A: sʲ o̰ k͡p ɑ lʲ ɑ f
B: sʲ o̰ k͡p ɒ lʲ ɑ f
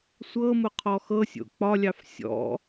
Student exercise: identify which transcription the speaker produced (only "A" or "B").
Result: B